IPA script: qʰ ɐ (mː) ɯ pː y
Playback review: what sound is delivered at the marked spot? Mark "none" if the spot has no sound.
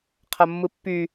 mː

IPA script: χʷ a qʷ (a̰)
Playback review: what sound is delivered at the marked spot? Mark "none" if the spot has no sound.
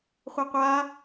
a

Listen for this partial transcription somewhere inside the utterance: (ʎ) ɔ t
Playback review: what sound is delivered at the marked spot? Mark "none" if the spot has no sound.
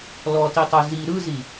l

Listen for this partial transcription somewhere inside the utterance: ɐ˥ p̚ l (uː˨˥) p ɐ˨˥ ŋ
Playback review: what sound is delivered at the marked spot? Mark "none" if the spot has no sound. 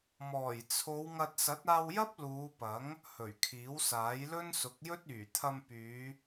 uː˨˧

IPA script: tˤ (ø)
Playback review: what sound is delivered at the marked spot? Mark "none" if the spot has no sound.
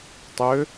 ø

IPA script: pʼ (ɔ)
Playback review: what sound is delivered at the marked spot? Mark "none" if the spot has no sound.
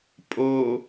o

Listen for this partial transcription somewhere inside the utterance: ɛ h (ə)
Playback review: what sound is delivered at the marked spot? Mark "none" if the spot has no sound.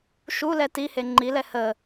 ə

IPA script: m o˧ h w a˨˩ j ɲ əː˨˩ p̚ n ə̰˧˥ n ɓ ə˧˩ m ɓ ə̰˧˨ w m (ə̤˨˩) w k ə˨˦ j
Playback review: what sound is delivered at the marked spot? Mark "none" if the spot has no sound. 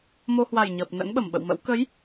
ə̰˧˥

